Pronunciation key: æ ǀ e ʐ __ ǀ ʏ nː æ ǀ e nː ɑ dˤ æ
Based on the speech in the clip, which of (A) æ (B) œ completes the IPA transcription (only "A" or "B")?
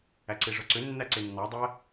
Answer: B